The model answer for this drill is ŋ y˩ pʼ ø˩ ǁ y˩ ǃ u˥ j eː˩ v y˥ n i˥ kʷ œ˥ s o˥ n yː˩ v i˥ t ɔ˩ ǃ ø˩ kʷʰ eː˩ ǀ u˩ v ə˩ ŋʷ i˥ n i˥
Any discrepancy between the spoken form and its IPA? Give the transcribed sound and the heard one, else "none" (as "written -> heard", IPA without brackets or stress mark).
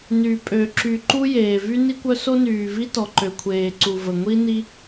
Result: ŋ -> n